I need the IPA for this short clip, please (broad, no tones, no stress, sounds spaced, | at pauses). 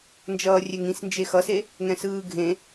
n d͡ʒ ʌː rʲ ɛ ŋ ĩ s n d͡ʒ e x ʌ s e | ŋ ɛ̃ s ɯː ɡʱ ẽ